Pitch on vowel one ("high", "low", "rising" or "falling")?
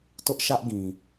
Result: high